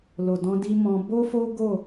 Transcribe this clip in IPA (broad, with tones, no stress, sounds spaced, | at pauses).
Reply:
l o˨ d ɔ̃˧ d i˧ m ɔ̃˧ b o˦ f o˦ ɡ o˦˨